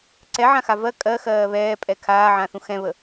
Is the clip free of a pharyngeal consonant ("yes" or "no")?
no